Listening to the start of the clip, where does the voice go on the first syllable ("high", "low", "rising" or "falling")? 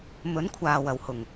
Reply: rising